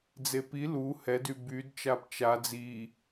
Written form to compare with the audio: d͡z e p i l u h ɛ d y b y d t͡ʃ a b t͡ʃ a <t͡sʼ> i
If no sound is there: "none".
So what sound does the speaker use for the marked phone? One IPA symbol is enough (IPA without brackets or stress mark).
d͡z